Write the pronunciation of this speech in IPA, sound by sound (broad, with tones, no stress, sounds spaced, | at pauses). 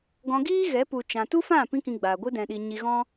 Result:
ɡ ɔ̃˧ ɡ iː˦ ɣ ɛ˨˦ p u˨ t͡ʃ ã˨ t u˦ f ã˦˨ p ĩ˦ k ĩ˧ ɡ͡b aː˨ ɡʷ ɨ˦ d ɛ̃˧ ɗ i˧ ɲ i˧ ɣ ɔ̃˦